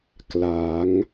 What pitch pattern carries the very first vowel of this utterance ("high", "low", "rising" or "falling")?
rising